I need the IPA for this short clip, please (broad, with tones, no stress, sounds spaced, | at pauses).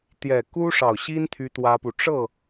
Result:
t̪ j ɛ˨˩ k u˥ ʂ ɑ˨˩ ʊ̯ ɕ i˥ n t̪ʰ y˥ t̪ w ä˥ p u˨ ʈ͡ʂ ɤ˥˩